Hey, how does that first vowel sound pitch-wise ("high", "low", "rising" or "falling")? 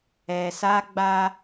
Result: low